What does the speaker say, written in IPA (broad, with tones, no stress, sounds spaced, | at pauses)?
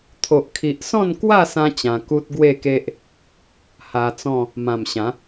t̪ʰ o˨ ʔ kʰ i˨ ʔ s ɔ̃˥˧ n k w a˥˧ s ã˧ t͡ɕ ã˧ k u˦ t̚ ɡ w e˥˧ k e˦ ʔ | h a˧ t͡s ɔ̃˥˧ | m ã˨˩ m ɕ ã˨˦